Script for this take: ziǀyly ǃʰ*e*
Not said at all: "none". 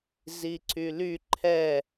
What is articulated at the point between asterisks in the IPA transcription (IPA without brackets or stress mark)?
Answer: ɛ